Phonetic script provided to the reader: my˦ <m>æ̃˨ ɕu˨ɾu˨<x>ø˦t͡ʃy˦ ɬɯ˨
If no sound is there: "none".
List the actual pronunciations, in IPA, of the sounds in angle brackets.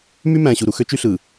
m, x

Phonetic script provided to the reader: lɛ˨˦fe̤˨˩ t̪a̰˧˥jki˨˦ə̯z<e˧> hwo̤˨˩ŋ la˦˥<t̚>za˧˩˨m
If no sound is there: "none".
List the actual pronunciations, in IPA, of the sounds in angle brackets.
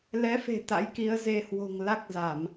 e˧, k̚

